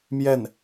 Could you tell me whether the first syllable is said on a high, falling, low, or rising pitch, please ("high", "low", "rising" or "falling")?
falling